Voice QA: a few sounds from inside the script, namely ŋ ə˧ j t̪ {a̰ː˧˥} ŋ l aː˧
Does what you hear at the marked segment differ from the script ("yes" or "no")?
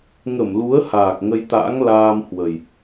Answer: no